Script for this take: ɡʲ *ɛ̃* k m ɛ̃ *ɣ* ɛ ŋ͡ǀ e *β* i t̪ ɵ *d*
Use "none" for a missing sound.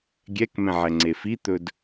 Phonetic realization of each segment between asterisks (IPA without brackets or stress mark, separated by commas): ɛ, ʕ, f, d